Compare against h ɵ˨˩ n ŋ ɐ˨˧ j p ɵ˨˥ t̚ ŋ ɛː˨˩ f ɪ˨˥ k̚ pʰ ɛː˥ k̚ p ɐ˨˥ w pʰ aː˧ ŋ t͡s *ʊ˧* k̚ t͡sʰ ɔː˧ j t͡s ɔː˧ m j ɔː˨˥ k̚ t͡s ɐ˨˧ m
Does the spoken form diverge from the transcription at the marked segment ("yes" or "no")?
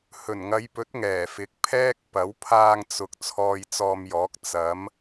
yes